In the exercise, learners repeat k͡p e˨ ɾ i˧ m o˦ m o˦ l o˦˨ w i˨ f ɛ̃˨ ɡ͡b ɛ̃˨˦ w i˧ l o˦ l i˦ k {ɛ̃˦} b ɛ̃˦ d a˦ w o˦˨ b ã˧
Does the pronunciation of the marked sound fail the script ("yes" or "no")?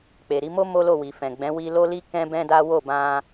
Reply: no